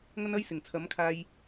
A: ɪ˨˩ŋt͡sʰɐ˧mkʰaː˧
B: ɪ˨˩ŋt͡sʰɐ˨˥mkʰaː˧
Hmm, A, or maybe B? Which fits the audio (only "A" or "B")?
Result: B